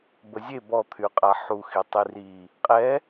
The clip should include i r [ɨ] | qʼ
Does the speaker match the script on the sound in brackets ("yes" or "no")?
no